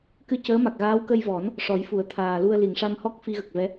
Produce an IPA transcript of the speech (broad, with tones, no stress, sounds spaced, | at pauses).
k ɨ˧ c əː˧˥ m a˨˩ k̚ ɣ aː˧˥ w k ə˧ j v ɔ˨˩˦ n | ʂ ɔ˨˩˦ j f u˨˩˦ ə̯ t̪ʰ aː˨˩ l u˧ ə̯ l i˨˩˨ ŋ ʂ a˧ m h ɔ˦˥ k̚ f i˧ ɣ ə˨˩ k̚ v ɛ˧˥